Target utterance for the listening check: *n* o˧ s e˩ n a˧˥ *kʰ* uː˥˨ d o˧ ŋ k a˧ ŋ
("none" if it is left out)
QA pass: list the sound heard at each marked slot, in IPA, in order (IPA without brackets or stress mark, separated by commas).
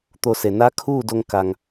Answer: t̪, kʰ